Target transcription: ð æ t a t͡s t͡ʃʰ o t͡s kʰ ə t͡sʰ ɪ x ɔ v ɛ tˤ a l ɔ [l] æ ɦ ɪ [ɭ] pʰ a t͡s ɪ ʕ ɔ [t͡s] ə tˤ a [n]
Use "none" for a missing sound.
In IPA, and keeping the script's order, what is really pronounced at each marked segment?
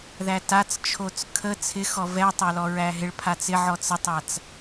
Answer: ɹ, ɭ, t͡s, t͡s

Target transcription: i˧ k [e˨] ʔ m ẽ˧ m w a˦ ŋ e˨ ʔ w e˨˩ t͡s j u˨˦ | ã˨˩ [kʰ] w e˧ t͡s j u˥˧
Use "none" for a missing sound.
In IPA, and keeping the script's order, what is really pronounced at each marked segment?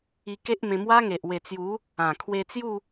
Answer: e˦, kʰ

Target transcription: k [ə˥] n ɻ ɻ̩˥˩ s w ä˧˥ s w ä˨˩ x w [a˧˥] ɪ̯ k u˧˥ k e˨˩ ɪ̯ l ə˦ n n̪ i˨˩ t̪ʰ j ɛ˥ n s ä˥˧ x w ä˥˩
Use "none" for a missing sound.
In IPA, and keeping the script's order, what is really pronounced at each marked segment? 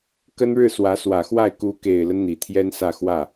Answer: ə˥, a˥˩

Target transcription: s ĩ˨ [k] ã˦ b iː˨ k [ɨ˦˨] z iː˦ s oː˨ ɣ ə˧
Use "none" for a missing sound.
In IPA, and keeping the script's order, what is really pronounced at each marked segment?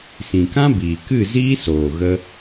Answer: k, ɨ˦˨

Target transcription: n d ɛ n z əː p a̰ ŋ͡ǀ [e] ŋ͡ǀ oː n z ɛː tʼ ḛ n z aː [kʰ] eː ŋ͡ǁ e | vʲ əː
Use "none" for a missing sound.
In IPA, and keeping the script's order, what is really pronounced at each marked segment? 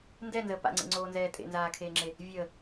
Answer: ḛ, kʰ

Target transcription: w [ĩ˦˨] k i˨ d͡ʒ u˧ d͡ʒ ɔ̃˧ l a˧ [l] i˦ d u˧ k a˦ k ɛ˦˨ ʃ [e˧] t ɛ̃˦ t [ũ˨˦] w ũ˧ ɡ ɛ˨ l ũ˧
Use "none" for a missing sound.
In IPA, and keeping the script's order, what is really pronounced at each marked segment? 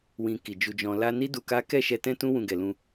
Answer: ĩ˨, n, ɛ˧, ũ˦

